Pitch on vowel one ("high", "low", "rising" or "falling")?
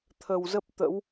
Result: low